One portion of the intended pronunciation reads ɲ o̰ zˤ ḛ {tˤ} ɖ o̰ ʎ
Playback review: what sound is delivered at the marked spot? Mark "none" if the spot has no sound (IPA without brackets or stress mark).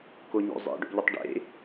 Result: none